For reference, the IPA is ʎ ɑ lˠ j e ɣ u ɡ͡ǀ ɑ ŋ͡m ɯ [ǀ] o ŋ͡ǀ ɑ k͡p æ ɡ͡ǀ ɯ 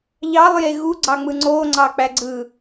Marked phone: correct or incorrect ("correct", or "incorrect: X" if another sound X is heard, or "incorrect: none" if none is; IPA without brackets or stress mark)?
incorrect: ŋ͡ǀ